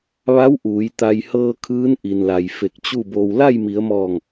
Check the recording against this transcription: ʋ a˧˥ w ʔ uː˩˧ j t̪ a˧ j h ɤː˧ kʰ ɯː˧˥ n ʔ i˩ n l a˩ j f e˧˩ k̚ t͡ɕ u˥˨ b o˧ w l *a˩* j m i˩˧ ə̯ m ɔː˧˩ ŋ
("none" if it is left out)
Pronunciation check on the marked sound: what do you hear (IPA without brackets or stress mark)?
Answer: a˥˨